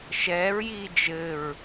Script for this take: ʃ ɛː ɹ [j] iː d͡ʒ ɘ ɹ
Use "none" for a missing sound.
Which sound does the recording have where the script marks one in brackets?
j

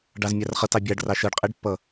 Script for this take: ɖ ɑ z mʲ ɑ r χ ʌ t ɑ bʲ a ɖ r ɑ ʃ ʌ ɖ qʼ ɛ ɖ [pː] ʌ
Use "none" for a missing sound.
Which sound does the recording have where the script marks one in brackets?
pː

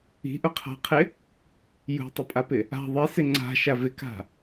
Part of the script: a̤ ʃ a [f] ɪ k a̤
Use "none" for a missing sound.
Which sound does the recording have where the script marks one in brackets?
v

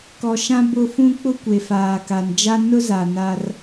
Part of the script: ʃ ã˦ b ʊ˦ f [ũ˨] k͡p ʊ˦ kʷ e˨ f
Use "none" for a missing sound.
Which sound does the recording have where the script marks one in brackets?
ũ˦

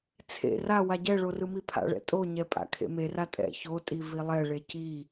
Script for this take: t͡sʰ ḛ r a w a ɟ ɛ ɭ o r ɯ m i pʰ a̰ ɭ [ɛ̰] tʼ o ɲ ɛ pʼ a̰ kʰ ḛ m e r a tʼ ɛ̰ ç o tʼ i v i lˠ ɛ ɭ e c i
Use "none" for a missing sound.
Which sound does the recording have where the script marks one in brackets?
ɛ̰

